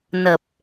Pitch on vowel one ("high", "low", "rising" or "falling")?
low